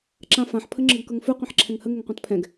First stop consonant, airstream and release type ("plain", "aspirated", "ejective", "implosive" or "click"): click